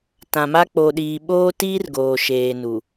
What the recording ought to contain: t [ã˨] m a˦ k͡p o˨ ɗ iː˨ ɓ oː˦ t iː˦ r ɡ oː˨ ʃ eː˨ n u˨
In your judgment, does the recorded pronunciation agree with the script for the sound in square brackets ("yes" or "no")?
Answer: yes